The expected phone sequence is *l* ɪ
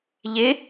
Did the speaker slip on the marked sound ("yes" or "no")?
yes